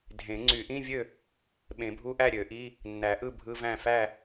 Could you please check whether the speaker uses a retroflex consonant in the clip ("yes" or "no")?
no